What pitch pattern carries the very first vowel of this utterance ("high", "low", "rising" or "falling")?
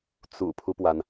low